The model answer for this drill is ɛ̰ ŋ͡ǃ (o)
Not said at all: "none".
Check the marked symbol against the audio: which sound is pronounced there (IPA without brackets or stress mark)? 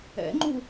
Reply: u